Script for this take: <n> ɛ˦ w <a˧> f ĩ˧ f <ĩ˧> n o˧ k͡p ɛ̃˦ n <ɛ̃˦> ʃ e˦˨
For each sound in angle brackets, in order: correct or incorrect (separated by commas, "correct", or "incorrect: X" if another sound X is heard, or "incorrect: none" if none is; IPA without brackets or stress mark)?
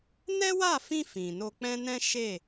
correct, incorrect: a˦˨, incorrect: ĩ˨, correct